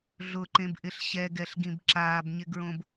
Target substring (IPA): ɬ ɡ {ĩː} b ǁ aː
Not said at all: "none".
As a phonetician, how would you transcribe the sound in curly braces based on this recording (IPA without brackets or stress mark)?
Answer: ĩ